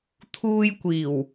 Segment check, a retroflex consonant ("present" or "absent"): absent